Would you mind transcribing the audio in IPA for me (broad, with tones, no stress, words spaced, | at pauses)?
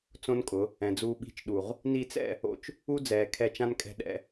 t͡sõ˦nkʼʊ˨˦ | ɛ̃˨d͡zuː˧ɓi̤˦˨t͡ʃ ɗu˨ʁ | ni˧t͡sɛ̰˦˨ | o̰˧t͡ʃ | u˦d͡zɛː˨kʰɛ˧t͡ʃã˦n kʼɛ̤˧ɗɛ̰˧